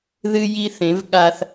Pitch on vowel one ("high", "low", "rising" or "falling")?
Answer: high